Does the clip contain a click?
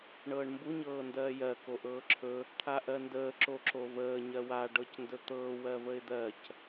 yes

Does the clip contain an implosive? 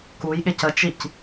yes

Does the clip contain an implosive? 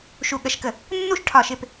yes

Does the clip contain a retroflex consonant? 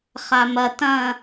no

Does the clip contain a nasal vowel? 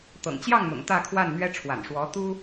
no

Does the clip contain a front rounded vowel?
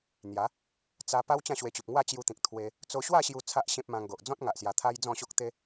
no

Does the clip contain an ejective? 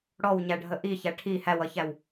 no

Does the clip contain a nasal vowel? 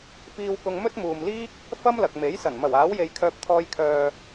no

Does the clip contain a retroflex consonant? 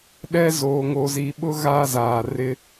no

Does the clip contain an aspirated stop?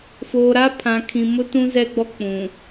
yes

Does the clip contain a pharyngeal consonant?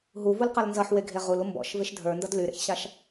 yes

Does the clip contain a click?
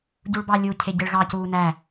no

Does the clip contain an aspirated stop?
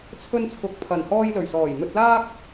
yes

